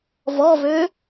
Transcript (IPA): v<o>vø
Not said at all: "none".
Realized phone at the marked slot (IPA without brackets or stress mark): ɔ